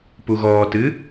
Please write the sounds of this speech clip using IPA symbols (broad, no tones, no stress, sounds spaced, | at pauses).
p u ɣ ɔː t ɨ